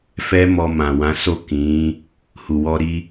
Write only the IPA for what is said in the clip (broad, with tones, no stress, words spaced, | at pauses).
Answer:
fɛ˦mɔ˧ mã˨wã˨˦so˦˨ kĩ˨˦ | hu˨wɔ˧ɾi˧